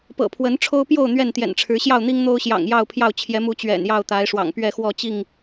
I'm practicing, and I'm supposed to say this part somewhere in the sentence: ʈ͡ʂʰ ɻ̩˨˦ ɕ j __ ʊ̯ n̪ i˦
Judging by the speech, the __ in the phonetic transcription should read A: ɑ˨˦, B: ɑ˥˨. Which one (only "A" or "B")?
B